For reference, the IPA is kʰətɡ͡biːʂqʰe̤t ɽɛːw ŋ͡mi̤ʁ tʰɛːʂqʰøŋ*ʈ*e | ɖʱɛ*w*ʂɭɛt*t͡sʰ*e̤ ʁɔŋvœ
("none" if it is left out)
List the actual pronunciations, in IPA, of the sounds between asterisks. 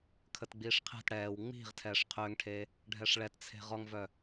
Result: ʈʰ, none, t͡sʰ

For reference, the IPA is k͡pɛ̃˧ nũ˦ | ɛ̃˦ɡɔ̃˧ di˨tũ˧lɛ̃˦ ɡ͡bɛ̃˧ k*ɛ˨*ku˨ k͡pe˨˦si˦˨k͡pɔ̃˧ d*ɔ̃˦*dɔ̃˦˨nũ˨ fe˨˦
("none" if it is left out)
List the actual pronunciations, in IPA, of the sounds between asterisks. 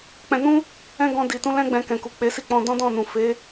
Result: ɛ̃˨, ɔ̃˦

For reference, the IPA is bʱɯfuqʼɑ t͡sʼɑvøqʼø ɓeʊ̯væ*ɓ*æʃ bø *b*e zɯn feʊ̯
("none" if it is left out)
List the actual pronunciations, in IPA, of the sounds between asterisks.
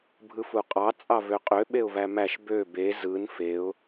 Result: m, b

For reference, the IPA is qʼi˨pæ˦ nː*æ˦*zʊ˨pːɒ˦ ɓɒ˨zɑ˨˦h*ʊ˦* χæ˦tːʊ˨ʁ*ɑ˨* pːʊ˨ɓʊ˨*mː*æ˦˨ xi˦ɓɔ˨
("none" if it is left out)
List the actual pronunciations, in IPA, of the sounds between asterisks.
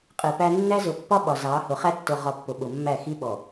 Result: æ˦, ʊ˨, ɒ˨, mː

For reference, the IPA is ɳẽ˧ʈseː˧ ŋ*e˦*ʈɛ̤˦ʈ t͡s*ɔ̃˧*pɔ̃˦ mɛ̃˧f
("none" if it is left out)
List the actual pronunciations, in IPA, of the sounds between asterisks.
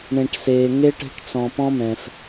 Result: e˦, ɔ̃˧

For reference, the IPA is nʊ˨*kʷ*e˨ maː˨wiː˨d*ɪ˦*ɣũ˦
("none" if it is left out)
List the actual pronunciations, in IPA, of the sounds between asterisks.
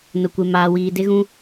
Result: kʷ, ɪ˦

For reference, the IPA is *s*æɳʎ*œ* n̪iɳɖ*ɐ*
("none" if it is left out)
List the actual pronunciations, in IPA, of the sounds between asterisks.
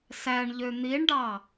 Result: s, ø, ɑ

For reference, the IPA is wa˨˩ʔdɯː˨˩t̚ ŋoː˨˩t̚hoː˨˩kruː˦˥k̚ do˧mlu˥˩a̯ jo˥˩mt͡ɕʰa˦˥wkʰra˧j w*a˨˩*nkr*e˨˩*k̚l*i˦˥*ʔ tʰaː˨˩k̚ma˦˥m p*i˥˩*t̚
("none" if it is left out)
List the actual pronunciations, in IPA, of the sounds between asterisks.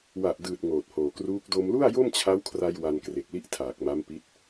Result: a˧, e˨˩, i˥˩, i˦˥

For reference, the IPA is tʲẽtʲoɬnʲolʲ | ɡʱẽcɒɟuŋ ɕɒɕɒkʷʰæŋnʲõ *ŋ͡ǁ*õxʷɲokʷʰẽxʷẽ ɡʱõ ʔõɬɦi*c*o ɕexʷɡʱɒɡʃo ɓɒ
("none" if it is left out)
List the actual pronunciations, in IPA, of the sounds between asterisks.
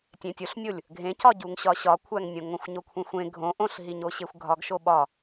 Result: ŋ, ɲ

